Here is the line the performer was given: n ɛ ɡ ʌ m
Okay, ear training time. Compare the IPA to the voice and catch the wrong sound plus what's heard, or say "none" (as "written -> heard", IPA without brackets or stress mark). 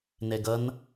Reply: m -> n